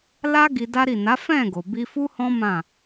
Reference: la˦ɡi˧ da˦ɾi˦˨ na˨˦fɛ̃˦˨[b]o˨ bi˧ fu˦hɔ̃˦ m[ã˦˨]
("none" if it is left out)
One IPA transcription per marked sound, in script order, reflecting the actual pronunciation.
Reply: ɡ, ã˦˨

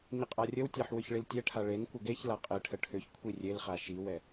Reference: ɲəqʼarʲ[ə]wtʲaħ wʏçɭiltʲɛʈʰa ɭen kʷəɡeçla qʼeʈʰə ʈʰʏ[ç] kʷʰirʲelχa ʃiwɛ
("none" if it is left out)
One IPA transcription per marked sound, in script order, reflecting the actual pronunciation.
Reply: ə, ç

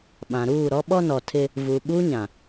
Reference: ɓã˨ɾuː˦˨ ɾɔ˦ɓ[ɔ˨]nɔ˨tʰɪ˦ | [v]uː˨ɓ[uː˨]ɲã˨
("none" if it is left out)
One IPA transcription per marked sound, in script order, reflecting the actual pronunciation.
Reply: ɔ˦, v, uː˦

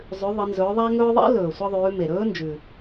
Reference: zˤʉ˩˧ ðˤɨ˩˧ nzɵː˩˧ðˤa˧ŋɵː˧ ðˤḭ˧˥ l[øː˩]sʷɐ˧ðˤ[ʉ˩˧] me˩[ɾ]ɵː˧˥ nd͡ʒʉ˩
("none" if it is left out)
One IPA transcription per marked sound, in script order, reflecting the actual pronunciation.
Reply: ɵː˩, ʉː˩˧, ɾ

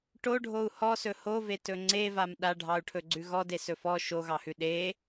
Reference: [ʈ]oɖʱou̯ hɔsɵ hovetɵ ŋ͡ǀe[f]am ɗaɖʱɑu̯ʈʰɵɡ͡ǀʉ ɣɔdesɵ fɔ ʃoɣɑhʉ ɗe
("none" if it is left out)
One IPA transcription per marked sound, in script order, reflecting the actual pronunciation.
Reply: ʈ, v

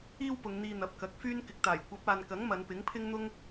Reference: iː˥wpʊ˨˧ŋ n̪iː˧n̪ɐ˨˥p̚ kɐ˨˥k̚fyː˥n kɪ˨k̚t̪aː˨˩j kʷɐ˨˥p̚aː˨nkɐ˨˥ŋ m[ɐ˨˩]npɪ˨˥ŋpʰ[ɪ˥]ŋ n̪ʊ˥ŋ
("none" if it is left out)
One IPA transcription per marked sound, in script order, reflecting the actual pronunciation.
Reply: ɐ˨˧, ɪ˥

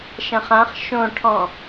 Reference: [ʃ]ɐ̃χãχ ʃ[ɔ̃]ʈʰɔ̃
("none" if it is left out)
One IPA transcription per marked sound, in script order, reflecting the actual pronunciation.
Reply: ʃ, õ

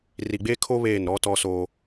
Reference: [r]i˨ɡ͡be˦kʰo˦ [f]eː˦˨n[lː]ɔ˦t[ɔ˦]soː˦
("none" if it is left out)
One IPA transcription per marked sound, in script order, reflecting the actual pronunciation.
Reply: r, β, ɾ, ɔ˦

